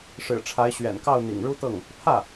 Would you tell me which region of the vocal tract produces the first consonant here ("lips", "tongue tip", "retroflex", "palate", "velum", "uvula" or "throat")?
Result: retroflex